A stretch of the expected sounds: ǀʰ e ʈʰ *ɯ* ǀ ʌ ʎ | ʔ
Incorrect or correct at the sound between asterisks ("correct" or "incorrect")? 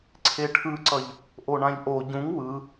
correct